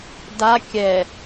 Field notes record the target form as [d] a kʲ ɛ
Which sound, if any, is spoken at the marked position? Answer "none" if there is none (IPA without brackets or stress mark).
d